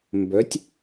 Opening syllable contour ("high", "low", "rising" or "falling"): rising